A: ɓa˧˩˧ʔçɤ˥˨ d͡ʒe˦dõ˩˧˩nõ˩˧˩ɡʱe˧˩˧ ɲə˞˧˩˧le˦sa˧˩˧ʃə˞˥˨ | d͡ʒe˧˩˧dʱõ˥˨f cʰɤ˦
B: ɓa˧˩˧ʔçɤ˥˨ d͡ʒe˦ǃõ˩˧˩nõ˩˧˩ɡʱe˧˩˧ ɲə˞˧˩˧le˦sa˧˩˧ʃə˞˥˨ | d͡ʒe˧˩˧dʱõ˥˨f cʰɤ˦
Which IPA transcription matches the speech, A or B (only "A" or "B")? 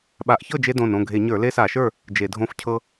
A